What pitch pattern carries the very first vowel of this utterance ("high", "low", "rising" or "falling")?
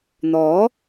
rising